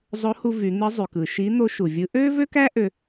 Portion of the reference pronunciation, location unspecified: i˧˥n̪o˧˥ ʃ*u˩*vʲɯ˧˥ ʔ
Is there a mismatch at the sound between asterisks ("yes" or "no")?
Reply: no